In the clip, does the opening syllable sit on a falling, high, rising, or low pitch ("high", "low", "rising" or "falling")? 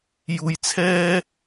low